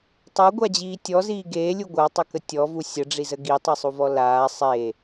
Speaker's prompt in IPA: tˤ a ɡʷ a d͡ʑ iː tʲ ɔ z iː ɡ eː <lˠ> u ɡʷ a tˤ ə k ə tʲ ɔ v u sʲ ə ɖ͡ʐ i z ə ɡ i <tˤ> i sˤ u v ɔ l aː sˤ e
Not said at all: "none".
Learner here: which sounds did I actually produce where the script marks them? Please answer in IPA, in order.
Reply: lʲ, tˤ

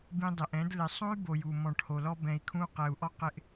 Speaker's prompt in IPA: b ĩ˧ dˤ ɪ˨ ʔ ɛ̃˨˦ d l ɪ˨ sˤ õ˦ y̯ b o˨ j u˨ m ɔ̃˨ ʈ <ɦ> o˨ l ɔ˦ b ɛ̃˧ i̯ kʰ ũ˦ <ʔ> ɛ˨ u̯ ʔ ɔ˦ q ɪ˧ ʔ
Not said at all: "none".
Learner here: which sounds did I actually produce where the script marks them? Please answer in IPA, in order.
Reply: h, q

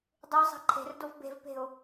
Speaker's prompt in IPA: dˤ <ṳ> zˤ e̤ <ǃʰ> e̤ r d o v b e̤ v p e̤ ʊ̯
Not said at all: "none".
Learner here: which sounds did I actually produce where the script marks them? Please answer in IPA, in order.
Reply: u, ǃʰ

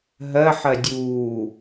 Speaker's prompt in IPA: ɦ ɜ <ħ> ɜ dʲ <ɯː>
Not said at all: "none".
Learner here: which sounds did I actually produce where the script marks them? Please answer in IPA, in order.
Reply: ħ, uː

